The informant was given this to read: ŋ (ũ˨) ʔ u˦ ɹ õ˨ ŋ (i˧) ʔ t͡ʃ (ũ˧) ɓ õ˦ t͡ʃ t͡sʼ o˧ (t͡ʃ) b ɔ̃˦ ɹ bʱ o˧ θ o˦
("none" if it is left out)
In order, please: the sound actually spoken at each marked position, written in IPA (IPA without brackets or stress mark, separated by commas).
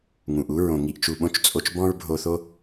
ũ˨, i˧, u˧, t͡ʃ